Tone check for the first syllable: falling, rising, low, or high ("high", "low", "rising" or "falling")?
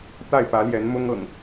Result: falling